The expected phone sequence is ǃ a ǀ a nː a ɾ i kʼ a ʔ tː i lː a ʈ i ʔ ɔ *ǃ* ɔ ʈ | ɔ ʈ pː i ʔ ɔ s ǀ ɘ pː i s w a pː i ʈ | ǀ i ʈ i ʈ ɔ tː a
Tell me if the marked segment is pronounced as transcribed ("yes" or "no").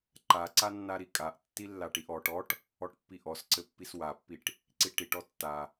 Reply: no